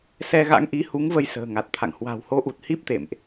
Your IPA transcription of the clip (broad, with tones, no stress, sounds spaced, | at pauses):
s ɛ˧ ɣ a̰˧˥ ŋ ʔ i˨˦ h u˨˦ ŋ v ə˧ j s ə̤ː˨˩ ŋ a˨˩ t̚ t̪ʰ a̰˧˨ ŋ h w a̤˨˩ w h o˨˦ ʔ u˨˩ t̚ h i˦˥ p̚ t̪ ḛ˧˨ m ʔ